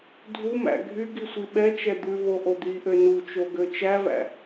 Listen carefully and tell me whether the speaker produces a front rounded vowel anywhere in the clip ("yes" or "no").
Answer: yes